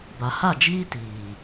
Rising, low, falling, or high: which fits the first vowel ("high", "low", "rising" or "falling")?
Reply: low